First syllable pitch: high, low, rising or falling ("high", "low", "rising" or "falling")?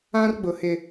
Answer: high